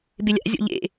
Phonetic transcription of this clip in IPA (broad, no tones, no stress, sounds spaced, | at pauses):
b ɪ lʲ a̰ zʲ ɔ̰ ʎ ḛ